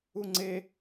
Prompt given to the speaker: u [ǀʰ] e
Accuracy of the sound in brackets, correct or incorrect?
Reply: incorrect